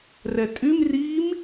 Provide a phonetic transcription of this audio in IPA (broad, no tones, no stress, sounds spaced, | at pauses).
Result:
r ɛ tʼ y m r iː m